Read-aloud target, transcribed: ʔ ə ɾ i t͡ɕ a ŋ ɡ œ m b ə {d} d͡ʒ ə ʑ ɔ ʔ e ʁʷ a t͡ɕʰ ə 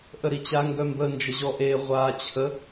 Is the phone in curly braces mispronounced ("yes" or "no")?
yes